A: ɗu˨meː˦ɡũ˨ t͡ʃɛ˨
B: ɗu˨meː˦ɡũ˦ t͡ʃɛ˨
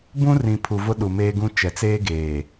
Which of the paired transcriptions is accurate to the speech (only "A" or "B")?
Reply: B